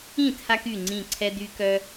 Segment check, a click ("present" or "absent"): present